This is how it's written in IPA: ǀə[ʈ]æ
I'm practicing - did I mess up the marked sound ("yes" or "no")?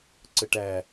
no